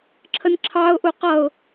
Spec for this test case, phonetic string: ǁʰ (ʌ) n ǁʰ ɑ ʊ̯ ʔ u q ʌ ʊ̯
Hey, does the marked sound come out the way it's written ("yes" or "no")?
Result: no